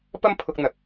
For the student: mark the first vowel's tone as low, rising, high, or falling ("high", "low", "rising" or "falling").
high